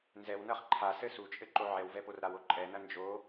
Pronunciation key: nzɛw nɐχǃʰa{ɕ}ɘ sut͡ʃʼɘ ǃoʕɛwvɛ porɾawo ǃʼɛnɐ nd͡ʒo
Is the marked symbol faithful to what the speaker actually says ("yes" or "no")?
no